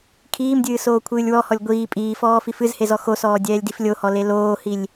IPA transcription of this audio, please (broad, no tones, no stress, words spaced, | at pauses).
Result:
kʰiːmdʲɨː soːkʷʰɨːlʲwɔhɔlʲ ɡʷiː pʼiːfɔː fifɨzhe zɔxosɔː dʲɛːlʲdiflʲohɔ leloːhilʲ